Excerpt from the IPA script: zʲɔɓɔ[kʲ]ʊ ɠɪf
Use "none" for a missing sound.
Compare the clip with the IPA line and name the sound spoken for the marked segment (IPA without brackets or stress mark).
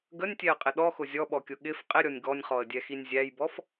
kʲ